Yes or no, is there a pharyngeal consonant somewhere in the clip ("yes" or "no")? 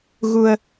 no